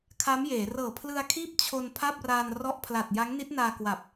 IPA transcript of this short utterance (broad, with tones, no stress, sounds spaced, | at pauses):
kʰ a˦˥ m j eː˩˦ r ɤː˨˩ pʰ l ɯ˧ a̯ kʰ iː˥˩ p̚ t͡ɕʰ o˧ n pʰ a˥˩ p̚ r aː˧ n r ɔ˥˩ ʔ pʰ l a˨˩ t̚ j a˦˥ ŋ n i˦˥ t̚ n aː˧ k w a˨˩ p̚